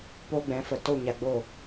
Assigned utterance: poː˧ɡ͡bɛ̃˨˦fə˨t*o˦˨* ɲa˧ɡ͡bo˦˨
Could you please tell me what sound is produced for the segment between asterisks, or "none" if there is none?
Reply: o˦˨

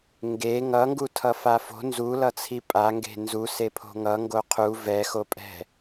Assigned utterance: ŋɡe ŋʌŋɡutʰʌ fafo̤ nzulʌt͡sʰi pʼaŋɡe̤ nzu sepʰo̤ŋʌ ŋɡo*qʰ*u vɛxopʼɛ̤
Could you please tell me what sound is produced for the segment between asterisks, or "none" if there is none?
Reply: qʰ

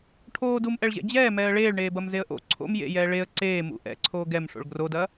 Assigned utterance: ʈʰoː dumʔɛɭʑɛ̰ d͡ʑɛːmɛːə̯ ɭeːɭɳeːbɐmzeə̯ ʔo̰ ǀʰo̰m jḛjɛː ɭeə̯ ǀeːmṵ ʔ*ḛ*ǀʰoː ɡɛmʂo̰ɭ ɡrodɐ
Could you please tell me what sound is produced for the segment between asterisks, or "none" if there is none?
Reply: ɛ̰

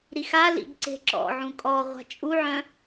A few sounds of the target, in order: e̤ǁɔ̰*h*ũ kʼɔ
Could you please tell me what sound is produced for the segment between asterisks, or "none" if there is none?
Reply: ʕ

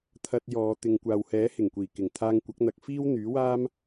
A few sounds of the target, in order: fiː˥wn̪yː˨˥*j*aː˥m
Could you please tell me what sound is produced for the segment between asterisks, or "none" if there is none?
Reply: w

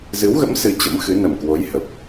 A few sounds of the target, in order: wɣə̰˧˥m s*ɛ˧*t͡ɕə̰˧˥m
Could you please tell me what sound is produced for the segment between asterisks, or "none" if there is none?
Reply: ɨ˧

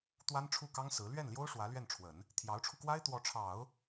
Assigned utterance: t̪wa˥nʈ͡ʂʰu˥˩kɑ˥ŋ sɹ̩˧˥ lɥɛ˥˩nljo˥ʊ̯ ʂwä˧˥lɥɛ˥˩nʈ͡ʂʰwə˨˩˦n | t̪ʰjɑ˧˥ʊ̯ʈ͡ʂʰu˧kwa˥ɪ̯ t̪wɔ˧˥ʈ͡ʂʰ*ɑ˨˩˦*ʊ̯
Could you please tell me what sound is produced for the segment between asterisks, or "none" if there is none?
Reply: ɑ˨˩˦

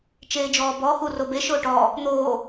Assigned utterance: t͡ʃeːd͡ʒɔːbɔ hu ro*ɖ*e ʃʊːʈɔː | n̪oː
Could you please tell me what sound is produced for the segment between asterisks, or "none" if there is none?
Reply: b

